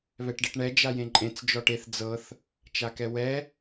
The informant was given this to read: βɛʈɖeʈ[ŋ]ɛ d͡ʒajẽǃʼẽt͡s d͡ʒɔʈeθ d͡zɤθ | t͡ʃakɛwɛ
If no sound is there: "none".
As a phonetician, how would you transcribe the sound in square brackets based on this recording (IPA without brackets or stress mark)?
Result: ɳ